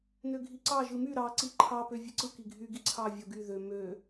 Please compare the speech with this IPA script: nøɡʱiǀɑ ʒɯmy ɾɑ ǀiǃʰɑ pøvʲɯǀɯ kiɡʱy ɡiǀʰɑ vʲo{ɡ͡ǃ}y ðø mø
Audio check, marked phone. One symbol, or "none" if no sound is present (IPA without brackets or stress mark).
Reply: ɡ